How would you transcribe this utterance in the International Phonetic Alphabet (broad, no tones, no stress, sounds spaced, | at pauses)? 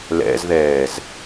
l ɛ̰ z ð ɛː z